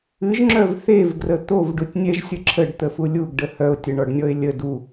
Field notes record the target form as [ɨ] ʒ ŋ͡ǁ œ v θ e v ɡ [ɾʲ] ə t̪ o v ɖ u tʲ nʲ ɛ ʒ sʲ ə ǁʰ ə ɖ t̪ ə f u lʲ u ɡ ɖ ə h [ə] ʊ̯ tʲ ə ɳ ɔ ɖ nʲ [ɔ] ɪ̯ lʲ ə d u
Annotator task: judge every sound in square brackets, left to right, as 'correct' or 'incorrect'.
correct, incorrect: r, incorrect: œ, correct

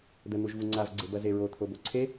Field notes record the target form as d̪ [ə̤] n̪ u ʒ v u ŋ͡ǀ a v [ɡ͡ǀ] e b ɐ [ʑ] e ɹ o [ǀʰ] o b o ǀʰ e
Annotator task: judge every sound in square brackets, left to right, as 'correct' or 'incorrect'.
incorrect: ə, correct, incorrect: z, incorrect: t̪ʰ

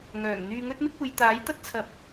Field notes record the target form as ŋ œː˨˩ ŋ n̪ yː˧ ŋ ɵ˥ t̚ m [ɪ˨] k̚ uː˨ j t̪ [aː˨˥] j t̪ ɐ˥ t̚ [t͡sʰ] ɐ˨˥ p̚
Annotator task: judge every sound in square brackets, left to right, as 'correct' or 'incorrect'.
incorrect: ɪ˥, correct, correct

